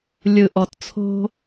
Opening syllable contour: low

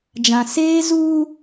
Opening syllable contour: low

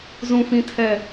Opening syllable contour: low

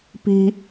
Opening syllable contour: high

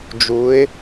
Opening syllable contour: rising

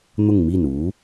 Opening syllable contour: falling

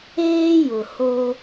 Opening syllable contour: high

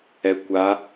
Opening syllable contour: low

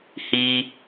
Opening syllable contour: low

